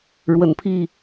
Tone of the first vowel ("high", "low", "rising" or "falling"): low